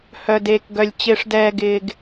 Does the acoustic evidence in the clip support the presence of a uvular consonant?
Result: no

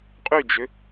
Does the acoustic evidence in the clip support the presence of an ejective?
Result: yes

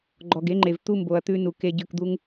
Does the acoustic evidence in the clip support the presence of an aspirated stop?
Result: no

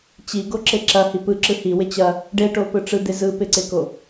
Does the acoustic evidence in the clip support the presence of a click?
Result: yes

